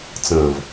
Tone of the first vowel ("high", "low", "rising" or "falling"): low